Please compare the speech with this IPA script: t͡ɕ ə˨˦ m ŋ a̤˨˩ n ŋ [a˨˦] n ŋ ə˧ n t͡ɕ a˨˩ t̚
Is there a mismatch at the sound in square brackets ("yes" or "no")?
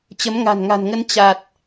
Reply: yes